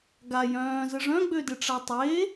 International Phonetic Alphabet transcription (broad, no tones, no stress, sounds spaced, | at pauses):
ɡ a j œ̃ː z ə ʐ œ̃ ɡ͡b ø d ɪ ʈ͡ʂ a tˤ e